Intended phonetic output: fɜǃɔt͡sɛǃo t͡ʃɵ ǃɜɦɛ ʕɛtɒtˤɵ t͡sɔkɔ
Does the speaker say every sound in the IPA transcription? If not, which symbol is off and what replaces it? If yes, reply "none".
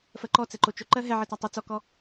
none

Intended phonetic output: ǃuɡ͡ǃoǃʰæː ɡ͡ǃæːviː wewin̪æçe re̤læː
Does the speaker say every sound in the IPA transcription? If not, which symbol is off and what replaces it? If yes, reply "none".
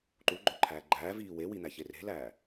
none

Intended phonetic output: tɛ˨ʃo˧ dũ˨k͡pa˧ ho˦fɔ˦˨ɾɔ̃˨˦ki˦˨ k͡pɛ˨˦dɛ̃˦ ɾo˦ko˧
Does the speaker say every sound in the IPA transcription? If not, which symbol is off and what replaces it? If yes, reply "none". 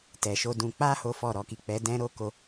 ɔ̃˨˦ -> ɔ˨˦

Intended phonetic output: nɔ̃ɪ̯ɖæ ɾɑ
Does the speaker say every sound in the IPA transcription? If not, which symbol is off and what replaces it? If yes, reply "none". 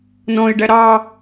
none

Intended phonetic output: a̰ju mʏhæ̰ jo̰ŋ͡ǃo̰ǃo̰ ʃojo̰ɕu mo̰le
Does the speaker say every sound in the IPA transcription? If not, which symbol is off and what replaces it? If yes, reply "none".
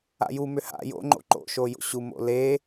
æ̰ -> a̰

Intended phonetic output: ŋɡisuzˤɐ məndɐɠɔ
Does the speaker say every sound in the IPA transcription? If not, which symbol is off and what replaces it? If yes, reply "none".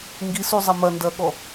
ə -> ɐ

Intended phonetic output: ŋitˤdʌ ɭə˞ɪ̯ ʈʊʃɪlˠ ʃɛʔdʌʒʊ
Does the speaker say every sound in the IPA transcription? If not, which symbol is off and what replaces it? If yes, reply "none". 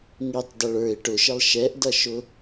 ʒ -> ʃ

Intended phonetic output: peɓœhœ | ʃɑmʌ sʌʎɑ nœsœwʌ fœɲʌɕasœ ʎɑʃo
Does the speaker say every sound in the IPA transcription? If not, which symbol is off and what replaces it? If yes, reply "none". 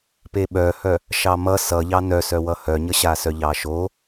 f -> h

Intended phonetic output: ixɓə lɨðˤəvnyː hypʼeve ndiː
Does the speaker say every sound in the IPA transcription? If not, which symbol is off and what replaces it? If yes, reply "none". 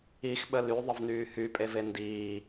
ɨ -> y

